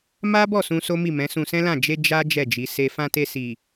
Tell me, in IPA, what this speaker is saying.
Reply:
m a˦ b ɔ˦˨ s ũ˧ s o˦ m i˦˨ m ɛ̃˨˦ s ũ˧ s ɛ̃˦ l ã˦˨ d͡ʒ e˧ d͡ʒ a˦ d͡ʒ ɛ˦˨ d͡ʒ i˨˦ s e˦ f ã˧ t e˧ s i˨

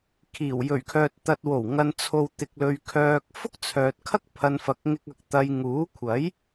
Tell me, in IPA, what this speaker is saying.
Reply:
kʰ iː˨˩ w j ɵ˨˩ ɥ kʰ œː˨ t̚ t̪ ɐ˧ t̚ w o˨˩ w ŋ ɐ˨ n t͡sʰ o˨ w t̪ ɪ˧ k̚ l ɵ˧ ɥ kʰ œː˨ k̚ f ʊ˥ k̚ t͡sʰ œː˨ t̚ kʰ ɐ˥ k̚ pʰ ɐ˧ n f ɐ˨ k̚ ŋ ɪ˧ k̚ ɐ˧ k̚ t̪ ɐ˧ j ŋ uː˨˥ kʷʰ ɐ˨˥ j

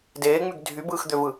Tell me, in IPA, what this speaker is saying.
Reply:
d eː ŋ͡m y ɡ dʱ y b ɯː x d̪ ø v ɯ

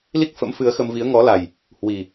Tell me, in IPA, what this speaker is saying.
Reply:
l i˦˥ k̚ f ə̰˧˥ m f ɨ˨˦ ə̯ x ə˧ m v i˨˦ ə̯ ŋ ɔ˨˦ l a˨˩ j | h w i˨˩

